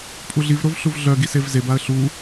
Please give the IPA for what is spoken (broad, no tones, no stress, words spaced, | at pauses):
pʼuɮivɾov ɬuvɮœɡi sevzebaə̯ ɬu